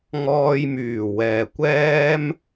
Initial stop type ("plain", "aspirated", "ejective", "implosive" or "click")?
plain